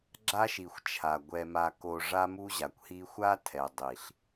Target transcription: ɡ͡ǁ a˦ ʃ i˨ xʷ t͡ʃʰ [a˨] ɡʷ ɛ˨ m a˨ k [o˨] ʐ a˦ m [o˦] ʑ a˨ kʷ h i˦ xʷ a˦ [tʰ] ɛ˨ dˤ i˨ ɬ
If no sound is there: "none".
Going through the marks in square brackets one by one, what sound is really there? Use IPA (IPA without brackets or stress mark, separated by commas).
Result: a˨, o˨, u˦, tʰ